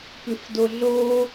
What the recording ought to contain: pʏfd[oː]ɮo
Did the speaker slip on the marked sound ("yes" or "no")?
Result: yes